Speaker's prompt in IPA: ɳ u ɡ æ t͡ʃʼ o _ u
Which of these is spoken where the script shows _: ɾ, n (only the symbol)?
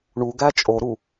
ɾ